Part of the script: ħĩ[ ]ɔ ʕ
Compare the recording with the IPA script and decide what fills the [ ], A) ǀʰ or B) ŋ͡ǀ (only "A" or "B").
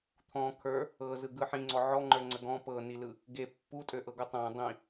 B